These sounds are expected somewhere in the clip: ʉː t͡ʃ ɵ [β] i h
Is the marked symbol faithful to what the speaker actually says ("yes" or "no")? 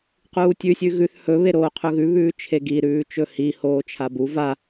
no